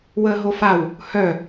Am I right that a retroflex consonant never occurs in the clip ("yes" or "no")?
yes